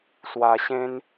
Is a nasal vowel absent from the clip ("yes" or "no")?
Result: no